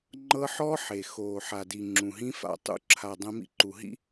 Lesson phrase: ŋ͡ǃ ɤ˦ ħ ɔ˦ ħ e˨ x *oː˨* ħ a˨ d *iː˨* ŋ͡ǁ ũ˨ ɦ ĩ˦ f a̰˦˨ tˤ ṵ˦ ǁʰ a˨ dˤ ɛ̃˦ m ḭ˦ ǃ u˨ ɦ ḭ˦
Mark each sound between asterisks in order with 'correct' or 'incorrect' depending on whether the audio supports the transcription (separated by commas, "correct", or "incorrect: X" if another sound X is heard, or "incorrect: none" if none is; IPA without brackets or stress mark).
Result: correct, incorrect: i˨